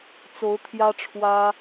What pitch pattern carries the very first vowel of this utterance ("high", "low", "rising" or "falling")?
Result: rising